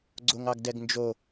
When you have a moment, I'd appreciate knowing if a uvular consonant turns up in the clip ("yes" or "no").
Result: no